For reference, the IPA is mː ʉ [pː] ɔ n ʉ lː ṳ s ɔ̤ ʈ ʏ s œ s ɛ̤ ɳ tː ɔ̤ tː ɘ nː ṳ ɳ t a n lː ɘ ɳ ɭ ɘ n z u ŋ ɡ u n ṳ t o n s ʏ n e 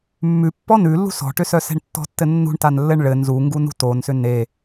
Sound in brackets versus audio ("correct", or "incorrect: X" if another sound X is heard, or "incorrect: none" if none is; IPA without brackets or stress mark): correct